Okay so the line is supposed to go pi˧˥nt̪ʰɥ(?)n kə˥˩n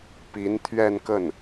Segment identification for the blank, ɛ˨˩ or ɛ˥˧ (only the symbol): ɛ˥˧